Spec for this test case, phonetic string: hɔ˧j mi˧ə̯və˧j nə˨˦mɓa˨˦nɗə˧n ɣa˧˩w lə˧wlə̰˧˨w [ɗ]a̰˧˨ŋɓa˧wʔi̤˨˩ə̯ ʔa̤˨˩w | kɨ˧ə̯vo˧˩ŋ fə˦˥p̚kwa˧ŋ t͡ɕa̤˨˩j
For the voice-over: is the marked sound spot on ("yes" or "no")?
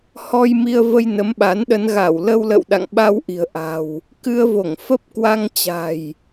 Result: yes